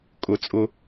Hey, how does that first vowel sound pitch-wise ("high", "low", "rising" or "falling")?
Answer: low